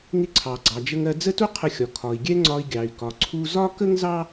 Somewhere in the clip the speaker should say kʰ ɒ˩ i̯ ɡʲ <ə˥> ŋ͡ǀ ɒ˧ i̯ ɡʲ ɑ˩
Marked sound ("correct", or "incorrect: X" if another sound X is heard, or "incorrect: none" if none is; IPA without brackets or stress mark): incorrect: ɛ˥